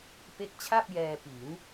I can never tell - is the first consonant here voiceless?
yes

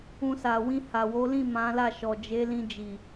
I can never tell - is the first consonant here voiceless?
yes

